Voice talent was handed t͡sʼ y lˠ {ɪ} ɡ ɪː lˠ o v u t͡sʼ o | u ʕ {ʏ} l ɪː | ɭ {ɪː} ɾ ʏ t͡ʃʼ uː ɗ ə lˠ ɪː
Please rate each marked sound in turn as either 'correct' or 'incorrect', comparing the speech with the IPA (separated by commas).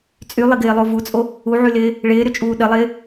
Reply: correct, incorrect, correct